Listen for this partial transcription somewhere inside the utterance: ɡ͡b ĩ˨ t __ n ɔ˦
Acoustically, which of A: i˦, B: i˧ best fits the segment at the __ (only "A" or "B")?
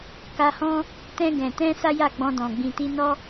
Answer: B